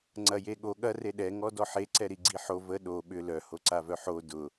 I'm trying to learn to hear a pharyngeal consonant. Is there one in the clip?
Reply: yes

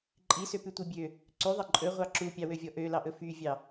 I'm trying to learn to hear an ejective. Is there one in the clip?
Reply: yes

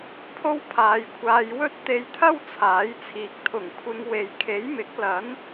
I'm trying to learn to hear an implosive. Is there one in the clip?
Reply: no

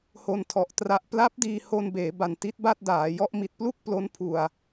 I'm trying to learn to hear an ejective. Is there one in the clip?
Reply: no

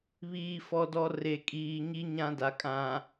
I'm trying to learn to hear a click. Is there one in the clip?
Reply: no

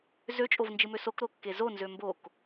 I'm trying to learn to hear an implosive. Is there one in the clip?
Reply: no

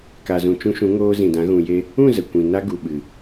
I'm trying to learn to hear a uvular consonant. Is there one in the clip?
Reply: no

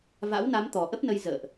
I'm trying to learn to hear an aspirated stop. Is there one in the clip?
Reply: no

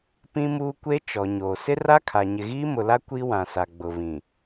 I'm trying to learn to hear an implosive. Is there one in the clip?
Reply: no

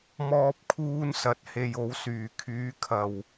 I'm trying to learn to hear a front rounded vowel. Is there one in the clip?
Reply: yes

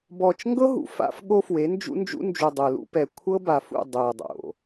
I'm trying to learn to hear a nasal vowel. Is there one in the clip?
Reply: no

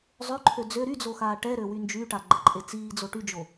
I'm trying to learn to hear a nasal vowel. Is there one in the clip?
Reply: no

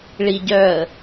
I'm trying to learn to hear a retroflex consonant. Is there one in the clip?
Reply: yes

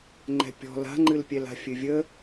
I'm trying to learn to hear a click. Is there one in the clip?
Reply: yes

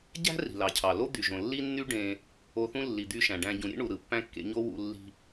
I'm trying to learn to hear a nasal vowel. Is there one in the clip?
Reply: yes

